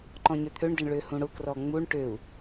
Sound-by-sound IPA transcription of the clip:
ǃ ɔ̃ ɲ ø t̪ʰ ø ɳ d ɪ ɳ ɭ ø h ũ ɽ ʊ k r ɔ ŋ͡m u ɳ ʈ ø u̯

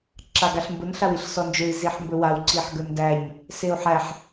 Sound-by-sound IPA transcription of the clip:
ǁ a ɡ a ɬ m b ʊ n ɬ a w i ɬ s ɔ n d͡ʒ ɵ i̯ z i ħ m b ɵ w a w ǀ i ħ ɡ ɵ n d æ ɲ | s e u̯ ħ æ ħ

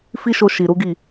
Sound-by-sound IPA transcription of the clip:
f i˦ ʃ o˧ ʃ i˨ ɾ u˨˦ ɡ i˦˨

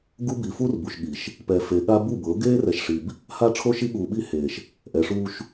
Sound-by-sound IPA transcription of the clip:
ɡ u˦ b i˨ f uː˦ r b u˨ ʃ ɠ i˨ ʃ | p ɛ˨ f e˨ ɠ a˦ b u˦˨ b ɤ˨˦ ɡ eː˦ r ɛ˨ ʃ ʂ i˨ b | h a˦ ʈ͡ʂʰ o˦ ʃ i˦ ɠ uː˨ ɓ i˦ h eː˨ ʃ | ʔ ɛ˨ ʂ uː˦ ʃ

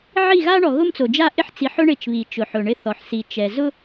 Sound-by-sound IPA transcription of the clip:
ʕ i˦˨ ɣ a˦ ɳ ɔ˨ ɣ ʊ˦ m t͡s o˨ d͡ʒ a˦ ʔ ɪ˦ ħ t͡s i˨˦ ħ ʊ˦ ɳ ɪ˦˨ t͡ʃ β i˨ t͡ʃ ʊ˨ ħ ʊ˨ ɳ ɪ˦ θ ɔ˨ ħ s i˨ t͡ʃ ɛ˨ z ʊ˦

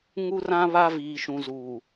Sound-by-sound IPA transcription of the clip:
ŋ u˦ r ã˦ β a˦ v iː˨ ʃ ũ˨ z uː˨

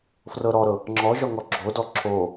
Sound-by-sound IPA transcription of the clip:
f r ɤ ɾ ɔ ɾ ɤ | ŋ͡ǁ ɔ ʒ ɔ ŋ ɔ ɡ͡ǁ o d ɔ ǁ o

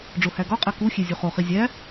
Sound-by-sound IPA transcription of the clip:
ɖ͡ʐ o h æ ɡ ɒ qʼ æ k u xʲ e zʲ u χ o χ i zʲ æ

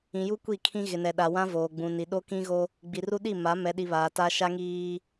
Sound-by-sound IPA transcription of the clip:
ĩ˨ j u˦ kʷ i˦˨ kʰ ĩ˦ ɣ ɪ˨ n ɛ˨ ɗ a˨ w ã˦ v oː˨ ɡ͡b ũ˨ n i˨ ɗ o˦ k ĩ˦ ɣ o˦ | ɡ͡b i˨ r u˦ ɗ i˦˨ m a˨˦ m ɛ˨ ɗ i˨ β aː˨ t a˦ ʃ a˦ ŋ iː˦

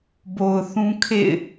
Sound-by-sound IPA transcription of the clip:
b o˨ ʊ̯ θ ũ˦ kʰ ḛ˦˨ ɪ̯

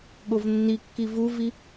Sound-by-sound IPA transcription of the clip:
ɠ o v nː i kː i v u v i

